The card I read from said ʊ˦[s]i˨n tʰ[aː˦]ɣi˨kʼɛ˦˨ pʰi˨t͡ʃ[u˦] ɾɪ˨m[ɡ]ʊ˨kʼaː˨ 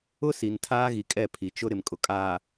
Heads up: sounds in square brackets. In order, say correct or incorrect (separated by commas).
correct, correct, incorrect, incorrect